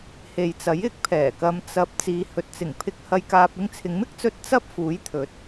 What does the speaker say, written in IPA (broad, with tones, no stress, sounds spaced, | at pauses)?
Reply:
h e˨ j t͡s ɐ˨˥ j ɪ˨˥ k̚ pʰ ɛː˨˩ k ɐ˧ m t͡s ɐ˨˥ p̚ t͡s iː˨˧ h ɵ˨ t̚ t͡s ɪ˨˩ ŋ pʰ ɪ˧ k̚ h ɐ˧ j k aː˧ p̚ ɪ˥ ŋ t͡sʰ ɪ˨˧ ŋ m ɪ˥ k̚ t͡s ɵ˧ t̚ t͡s ɐ˥ p̚ f uː˨˥ j t̪ʰ ɵ˨˥ t̚